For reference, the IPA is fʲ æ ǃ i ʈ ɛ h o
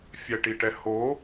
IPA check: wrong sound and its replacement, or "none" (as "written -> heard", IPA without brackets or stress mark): ǃ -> ʈ